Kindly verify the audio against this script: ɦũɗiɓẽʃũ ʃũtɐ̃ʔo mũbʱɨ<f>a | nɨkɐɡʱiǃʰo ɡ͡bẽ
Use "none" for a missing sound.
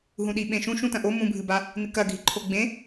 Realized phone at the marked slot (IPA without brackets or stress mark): b